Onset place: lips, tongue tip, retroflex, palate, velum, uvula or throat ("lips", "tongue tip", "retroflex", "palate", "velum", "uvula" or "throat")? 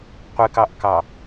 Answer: uvula